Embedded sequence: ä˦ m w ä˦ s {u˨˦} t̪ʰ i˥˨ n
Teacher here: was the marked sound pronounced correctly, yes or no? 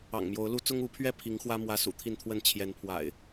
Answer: no